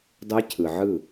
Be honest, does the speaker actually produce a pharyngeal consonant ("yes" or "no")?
yes